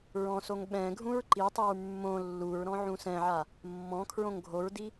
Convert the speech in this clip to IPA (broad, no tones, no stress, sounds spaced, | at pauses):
ɹ ɔ̃ s o ŋ ɓ ɛ̃ ɡʱ ũ ɹ ǃ i tˤ i ɹ mː õ lː u ɹ ɾ ɔ̃ ʕ ũ s ɛ̃ ʕ a | mː ɔ̃ kʰ ɹ õ ŋ ɡʱ o ɹ d i